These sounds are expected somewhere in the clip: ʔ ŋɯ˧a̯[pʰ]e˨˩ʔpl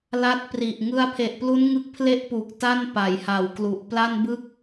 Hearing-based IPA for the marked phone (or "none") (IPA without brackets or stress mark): pʰ